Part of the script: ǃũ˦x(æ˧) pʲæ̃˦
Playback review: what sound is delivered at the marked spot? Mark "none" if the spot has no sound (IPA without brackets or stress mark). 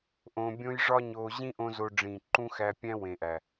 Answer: æ˧